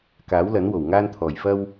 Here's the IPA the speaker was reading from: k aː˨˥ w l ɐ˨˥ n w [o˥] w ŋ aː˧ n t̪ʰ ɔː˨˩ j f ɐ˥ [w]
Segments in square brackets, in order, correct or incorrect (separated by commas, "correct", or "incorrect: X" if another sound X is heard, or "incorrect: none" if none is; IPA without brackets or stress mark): incorrect: o˨˩, correct